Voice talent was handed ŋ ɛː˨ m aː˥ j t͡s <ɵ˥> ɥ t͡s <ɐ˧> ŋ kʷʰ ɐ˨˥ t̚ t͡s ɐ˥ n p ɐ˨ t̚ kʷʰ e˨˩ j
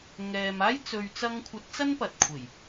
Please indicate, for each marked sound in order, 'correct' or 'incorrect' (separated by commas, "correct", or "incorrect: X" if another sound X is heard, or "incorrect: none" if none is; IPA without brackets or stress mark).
incorrect: ɵ˨, correct